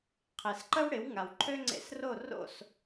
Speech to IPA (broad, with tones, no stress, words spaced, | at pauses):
qʰɪ˩s ǃə˥wɽɪ˩˥wŋa˩w ǃʰø˥ŋ͡ǀḛ˧sro˥˩ ro̰˥˩s